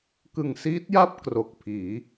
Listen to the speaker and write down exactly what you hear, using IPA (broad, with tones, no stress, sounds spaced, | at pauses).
k ɯ˨˩ ŋ s iː˦˥ t̚ j a˥˩ p̚ k r o˨˩ k̚ pʰ iː˩˦